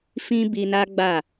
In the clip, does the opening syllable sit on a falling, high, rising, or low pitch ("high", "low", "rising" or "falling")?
high